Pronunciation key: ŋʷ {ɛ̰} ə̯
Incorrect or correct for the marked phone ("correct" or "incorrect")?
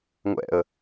correct